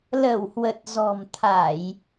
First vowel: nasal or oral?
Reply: oral